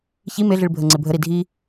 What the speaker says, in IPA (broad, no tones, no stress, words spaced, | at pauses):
çi meɮiɭ bʱəŋ͡ǀebʱəɾi dʱi